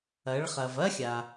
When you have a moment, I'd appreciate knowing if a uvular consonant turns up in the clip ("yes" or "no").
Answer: yes